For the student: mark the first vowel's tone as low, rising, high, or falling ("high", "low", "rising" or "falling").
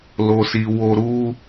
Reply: low